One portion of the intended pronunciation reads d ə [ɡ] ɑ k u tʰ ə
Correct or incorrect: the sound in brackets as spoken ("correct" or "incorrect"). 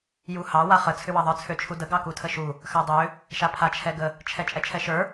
correct